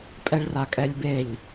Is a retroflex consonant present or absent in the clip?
present